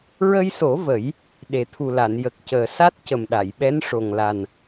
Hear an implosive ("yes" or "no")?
yes